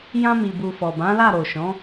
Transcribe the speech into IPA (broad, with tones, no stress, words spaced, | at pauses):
jã˧mi˨bu˨ fɔ˨bã˨˦la˦˨ ɾo˨ʃɔ̃˨˦